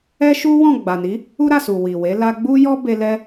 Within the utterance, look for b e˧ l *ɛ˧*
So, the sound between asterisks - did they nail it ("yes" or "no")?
yes